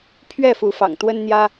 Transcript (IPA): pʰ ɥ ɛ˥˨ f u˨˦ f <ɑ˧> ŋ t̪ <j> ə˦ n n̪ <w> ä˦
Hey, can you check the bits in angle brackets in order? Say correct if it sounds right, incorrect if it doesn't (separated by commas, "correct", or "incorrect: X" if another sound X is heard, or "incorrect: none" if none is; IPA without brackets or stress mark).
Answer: incorrect: ɑ̰˨˩, incorrect: w, incorrect: j